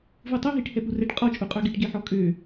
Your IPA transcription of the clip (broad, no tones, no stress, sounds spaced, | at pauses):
v u tˤ ɵ ɦ i ʈ h ɛ p u r ɛ ʈ qʼ ɔ t͡ʃʼ u qʼ œ ɡ e ʈ ɡ e ħ ɔ kʼ ø